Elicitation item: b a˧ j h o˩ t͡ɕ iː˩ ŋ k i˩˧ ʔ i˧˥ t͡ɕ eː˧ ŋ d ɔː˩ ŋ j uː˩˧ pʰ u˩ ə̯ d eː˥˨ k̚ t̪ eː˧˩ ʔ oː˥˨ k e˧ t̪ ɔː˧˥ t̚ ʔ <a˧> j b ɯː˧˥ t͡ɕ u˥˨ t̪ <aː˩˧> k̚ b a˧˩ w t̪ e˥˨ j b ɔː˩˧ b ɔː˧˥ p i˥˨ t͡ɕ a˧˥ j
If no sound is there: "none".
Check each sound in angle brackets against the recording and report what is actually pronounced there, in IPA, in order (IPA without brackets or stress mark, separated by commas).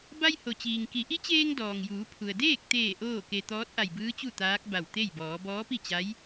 a˧˩, aː˧˥